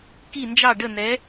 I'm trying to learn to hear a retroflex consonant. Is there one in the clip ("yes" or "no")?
yes